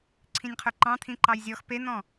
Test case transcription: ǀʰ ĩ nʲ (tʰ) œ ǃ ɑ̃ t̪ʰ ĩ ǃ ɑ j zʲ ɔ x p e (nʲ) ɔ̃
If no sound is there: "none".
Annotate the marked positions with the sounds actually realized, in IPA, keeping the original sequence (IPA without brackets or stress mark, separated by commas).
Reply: qʰ, n̪